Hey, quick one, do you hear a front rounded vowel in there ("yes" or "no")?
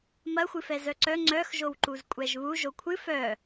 yes